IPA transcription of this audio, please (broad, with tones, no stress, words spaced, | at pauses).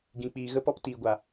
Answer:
ɡĩ˨k͡piː˨ ɣə˧pɔ˧ptiː˨ɡʷa˨